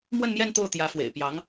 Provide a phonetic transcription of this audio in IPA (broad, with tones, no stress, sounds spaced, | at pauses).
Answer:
m w ə˥˧ n m j ɛ˥˧ n t̪ o˥˩ ʊ̯ t̪ j ä˧˥ f w ḛ˨˩ ɪ̯ p j ɑ˧˥ ŋ